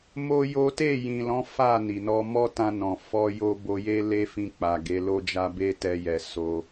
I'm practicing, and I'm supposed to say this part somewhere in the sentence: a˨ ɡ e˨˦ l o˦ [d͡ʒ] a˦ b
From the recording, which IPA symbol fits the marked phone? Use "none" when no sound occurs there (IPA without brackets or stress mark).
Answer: d͡ʒ